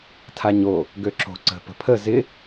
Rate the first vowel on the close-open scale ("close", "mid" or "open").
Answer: open